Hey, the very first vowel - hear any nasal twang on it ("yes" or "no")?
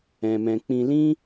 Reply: yes